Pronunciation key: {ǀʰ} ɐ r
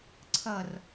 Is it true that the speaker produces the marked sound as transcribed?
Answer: yes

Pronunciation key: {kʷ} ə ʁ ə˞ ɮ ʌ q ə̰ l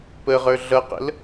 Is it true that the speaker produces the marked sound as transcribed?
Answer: no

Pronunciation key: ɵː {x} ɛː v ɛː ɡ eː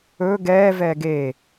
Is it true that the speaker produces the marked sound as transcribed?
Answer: no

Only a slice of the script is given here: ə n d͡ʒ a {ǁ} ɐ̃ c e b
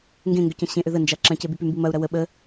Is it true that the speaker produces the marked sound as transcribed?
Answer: yes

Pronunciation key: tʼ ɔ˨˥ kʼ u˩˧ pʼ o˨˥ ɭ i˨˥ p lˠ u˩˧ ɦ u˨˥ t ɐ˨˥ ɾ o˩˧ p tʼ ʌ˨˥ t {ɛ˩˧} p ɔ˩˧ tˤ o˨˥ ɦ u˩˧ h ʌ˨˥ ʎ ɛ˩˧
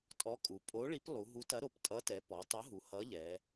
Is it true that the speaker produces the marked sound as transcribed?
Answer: yes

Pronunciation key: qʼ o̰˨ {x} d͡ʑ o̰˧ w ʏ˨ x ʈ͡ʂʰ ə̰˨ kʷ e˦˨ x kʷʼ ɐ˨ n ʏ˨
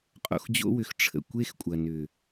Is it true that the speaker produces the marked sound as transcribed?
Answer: yes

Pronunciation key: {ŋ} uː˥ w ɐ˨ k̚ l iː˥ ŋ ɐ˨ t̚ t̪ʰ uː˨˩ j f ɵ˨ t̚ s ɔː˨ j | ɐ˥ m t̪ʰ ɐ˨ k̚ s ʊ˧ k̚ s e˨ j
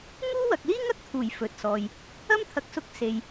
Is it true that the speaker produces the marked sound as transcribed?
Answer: yes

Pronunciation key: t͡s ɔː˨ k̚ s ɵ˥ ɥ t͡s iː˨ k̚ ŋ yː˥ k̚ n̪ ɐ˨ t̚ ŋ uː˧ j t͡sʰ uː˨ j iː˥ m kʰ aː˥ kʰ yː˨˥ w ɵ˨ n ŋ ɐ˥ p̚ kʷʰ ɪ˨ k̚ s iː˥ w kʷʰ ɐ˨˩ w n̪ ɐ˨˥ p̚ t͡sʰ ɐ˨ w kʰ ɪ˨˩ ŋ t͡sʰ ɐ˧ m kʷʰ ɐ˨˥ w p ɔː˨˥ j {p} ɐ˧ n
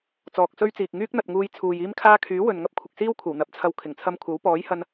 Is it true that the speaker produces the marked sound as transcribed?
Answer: no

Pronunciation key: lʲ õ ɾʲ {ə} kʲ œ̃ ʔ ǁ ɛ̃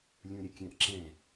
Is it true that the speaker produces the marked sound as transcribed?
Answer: yes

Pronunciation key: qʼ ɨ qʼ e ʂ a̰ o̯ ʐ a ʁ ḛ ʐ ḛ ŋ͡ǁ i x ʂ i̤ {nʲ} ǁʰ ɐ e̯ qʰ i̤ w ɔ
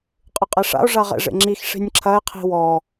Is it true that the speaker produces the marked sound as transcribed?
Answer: yes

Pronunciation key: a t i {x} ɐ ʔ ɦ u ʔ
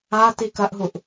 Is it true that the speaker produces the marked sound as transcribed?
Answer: no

